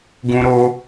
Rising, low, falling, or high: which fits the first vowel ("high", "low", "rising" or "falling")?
high